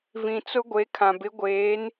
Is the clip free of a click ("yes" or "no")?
yes